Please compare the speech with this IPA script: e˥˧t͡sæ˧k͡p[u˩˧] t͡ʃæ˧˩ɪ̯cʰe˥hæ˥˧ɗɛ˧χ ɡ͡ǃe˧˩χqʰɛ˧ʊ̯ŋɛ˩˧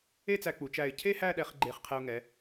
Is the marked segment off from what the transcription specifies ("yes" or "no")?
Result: no